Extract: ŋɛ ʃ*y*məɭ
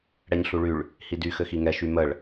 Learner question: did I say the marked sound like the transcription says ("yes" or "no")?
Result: yes